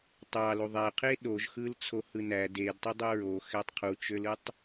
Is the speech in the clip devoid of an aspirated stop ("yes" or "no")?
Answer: no